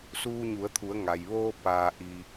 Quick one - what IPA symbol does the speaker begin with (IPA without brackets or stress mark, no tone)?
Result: s